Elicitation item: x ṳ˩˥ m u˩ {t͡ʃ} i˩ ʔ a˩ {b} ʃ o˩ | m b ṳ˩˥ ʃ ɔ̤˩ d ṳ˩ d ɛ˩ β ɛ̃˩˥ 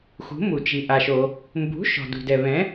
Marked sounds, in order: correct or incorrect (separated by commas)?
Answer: correct, incorrect